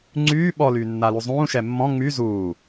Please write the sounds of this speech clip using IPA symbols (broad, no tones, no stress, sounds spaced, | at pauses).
ŋ͡ǀ yː ɓ ɔ l yː nː a l u zˤ ũː ʃ ɛ mː ɔ̃ ŋ͡m y z uː